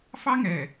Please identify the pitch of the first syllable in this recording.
high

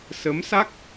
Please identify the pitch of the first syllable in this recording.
rising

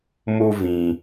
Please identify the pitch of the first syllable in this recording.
high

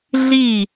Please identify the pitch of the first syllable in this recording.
falling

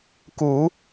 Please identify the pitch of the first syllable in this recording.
low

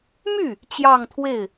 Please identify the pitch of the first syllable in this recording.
falling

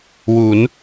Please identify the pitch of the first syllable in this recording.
rising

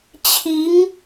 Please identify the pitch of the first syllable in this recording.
rising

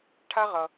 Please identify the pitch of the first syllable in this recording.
high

